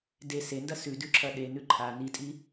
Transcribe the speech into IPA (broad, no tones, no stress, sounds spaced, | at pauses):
d e s e n d ɐ s ʉ d ʉ ǁʰ ɐ ɗ e n ʉ ǃʰ a n i tʼ i